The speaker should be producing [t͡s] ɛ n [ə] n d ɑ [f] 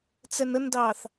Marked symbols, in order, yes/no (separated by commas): yes, yes, no